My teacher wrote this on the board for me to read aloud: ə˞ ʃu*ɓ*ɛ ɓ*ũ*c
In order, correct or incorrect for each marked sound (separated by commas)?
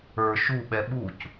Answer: correct, incorrect